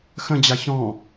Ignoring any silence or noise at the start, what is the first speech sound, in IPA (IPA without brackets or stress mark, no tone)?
x